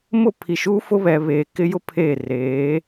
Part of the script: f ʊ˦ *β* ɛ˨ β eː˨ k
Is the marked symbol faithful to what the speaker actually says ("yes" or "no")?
yes